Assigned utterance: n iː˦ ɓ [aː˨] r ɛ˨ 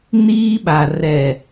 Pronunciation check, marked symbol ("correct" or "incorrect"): incorrect